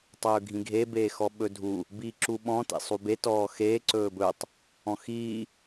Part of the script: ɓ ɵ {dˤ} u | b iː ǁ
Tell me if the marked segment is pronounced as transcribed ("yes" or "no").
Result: no